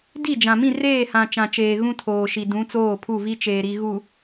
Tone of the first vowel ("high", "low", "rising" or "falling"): falling